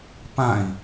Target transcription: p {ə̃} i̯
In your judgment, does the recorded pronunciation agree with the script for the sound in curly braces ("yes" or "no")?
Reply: no